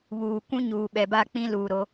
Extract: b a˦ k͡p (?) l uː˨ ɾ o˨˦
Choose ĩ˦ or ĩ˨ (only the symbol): ĩ˦